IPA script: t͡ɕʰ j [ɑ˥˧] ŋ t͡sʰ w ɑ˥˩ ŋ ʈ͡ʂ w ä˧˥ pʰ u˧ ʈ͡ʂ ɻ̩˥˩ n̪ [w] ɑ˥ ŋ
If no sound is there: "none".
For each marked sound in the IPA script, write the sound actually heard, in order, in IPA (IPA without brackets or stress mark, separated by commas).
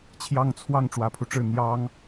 ɑ˥˧, j